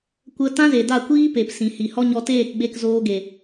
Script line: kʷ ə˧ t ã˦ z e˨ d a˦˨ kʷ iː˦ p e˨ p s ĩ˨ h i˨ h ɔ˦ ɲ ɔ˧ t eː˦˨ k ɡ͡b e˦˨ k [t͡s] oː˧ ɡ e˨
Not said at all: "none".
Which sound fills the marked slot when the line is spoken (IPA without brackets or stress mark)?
z